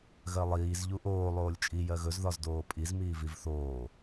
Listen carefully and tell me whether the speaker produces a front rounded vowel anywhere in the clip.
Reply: no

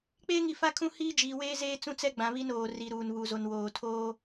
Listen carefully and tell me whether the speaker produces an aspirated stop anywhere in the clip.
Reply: yes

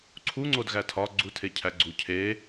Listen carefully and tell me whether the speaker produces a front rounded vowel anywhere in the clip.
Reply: no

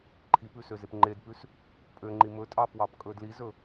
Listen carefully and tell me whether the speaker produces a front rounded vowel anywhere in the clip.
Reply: yes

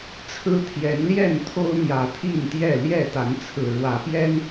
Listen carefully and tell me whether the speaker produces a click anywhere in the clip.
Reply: no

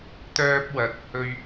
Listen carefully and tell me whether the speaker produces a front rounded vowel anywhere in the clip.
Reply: yes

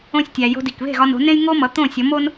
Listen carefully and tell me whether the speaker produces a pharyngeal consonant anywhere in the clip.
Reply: no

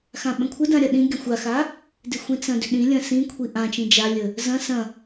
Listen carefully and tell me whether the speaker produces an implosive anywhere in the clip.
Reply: yes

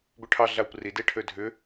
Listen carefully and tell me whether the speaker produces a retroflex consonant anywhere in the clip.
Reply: yes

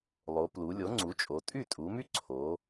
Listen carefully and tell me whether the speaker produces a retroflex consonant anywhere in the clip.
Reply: no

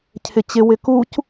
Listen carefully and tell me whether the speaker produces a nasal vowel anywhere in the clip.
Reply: no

